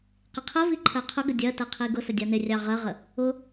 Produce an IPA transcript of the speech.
qɪqʰəvi ǃʰɜqʰʊɡə dʲɜtɜ qʰiɡʊsə dʲɑnɪrʲɑ ʁɜʁə | ʊ

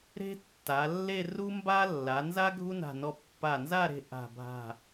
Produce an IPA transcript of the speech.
ɾe̤˥tːa˩˧lːe˥˧ru˥ mba˥ lːa˩˧nza˥ ɡʱu˥na̤˧˩nɔ˧ pːa˧˩nza˥˧ɾe̤˧ ʔa̤˧˩bʱa̤˧˩

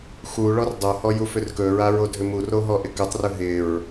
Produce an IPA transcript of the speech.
xu ɭɔrdˤohɔ jufʏrkɵɹa ɹodʱʏmuro ɦɔʔɪkɵtˤrɵ ɦɪɹ

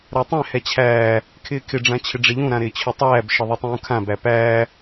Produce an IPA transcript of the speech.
ɾatˤɛ̃ hɛt͡ɕʰæː | kʰɪːkʰɪ ɖ͡ʐãt͡ɕʰɪɖ͡ʐeʎũ ɾãɾɪːt͡ɕʰʊtˤæːb ʃɪðˤɛtˤũːkʰã bæpæː

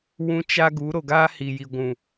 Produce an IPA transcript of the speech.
wũ˧ t͡ʃa˦ɡu˨˦ ɾo˨ɡaː˦hi˨ji˨ ɡʷũ˨

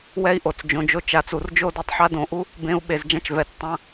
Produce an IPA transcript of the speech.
wɛ˦i̯ʔo˩˧t͡s d͡ʒõ˩˧d͡ʒo˦ t͡ʃa˩˧t͡su˩˧rd͡ʒo˦ du˩˧tˤħa˦dõ˩˧ʔu˦ | bẽ˦u̯ ɓe˩˧zd͡ʒã˦t͡ʃvɛ˩˧t͡s tˤã˦

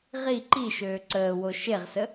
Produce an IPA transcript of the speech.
ʁi ǃiʃøː ǀəːwo ʃeʁsə

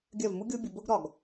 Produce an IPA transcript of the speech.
ɡʲɜ˦˨vmu˦ɡʲʊː˦ bʲʊ˧bʊː˦ɡ ɾɒ˨ɡ

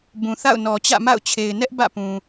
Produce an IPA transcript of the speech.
bũ˨θa̰˦˨ʊ̯ nɔ˨t͡ɕä̰˦˨ma̰˦˨ʊ̯t͡ɕʰe˨ɪ̯ nɛ˦ʔ bä̰˦˨pũ˨

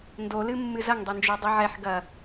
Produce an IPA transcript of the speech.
ndolɨ mːɨzɐŋdˤend͡ʒo dˤiʕɛħ ɡɐ

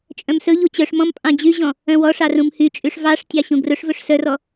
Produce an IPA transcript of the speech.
t͡ʃʼœ̃msɵʎu t͡ɕœʂmɔ̃m pʼɑ̃d͡ʑyʑɔ̃ | œ̃wɔʂɑ rũmhyt͡ʃʼyʂ vɑʂtʲɑ ɕũɡrɵʂvɵʂ sœrɔ

